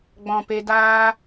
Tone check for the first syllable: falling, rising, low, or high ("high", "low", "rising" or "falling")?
low